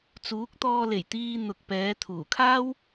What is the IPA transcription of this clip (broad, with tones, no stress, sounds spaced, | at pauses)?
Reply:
t͡s uː˨˥ k̚ t̪ ɔː˧ l e˨˩ j t̪ iː˧ n̪ ʊ˨ k̚ p ɛː˨˧ t̪ʰ uː˨˩ kʰ aː˥ w